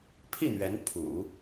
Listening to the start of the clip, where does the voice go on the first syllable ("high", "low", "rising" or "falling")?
falling